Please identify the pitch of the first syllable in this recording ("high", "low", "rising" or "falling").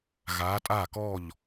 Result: rising